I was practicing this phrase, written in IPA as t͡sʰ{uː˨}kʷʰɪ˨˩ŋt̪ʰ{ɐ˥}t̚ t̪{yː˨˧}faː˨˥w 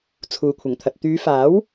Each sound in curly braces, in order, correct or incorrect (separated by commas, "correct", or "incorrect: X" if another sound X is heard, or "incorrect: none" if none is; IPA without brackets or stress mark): correct, incorrect: ɐ˨, correct